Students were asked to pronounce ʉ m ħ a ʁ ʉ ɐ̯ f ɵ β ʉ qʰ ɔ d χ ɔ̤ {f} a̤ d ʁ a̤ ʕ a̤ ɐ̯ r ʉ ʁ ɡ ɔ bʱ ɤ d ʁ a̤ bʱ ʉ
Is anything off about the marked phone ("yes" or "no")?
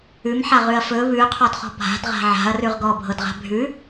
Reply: yes